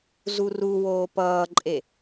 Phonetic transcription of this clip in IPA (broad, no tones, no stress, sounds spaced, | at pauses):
z u r u w oː p ʌː ǃʼ e